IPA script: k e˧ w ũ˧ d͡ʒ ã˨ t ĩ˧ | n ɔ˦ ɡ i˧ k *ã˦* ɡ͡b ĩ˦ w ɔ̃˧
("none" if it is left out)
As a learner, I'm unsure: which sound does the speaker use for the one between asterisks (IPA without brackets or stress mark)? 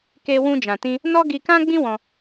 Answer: ã˦